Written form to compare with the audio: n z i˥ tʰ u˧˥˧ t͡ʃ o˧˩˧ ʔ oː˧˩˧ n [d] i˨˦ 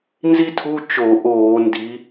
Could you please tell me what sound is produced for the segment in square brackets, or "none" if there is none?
d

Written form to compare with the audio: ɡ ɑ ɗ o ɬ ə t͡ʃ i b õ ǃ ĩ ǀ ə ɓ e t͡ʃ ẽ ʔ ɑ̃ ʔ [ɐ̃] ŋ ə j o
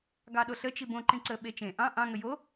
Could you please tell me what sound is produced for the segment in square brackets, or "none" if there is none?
ɑ̃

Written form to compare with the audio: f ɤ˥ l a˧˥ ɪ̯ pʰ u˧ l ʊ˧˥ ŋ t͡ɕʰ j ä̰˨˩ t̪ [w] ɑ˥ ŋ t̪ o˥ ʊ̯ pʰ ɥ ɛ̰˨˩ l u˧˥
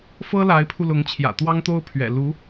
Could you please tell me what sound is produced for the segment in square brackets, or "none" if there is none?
w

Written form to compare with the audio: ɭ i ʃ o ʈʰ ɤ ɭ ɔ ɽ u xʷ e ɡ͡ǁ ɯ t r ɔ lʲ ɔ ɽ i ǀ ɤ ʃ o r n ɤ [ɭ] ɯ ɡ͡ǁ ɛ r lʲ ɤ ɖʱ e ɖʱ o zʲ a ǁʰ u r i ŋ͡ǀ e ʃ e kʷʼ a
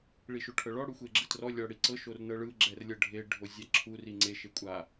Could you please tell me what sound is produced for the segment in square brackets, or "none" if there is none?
ɭ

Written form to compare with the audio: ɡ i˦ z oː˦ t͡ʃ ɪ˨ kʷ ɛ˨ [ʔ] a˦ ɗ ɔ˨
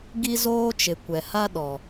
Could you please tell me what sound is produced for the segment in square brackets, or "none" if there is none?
h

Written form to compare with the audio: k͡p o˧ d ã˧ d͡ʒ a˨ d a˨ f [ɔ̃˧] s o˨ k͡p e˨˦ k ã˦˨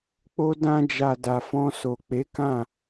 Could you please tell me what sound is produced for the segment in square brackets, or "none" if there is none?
ɔ̃˧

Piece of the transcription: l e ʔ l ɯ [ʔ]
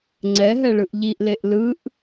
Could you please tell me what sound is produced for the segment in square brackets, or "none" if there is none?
ʔ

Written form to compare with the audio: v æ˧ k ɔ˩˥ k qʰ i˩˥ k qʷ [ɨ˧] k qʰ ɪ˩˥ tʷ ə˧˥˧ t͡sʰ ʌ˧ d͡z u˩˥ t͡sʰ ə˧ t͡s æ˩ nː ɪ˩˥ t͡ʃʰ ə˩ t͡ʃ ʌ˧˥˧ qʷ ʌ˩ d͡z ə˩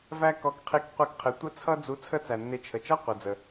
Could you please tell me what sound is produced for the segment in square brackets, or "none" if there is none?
ɛ˧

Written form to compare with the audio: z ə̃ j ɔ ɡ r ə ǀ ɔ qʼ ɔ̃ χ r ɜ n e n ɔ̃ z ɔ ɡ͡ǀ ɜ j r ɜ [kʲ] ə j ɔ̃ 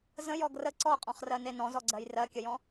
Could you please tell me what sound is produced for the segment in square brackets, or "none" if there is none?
kʲ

